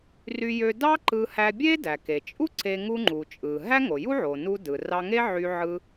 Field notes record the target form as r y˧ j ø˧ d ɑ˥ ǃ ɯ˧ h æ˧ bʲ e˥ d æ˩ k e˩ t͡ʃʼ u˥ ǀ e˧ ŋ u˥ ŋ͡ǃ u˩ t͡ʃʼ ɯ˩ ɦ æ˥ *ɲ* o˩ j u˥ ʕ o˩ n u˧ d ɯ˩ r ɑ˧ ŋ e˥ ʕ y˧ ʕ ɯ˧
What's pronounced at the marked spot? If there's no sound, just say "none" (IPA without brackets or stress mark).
ŋ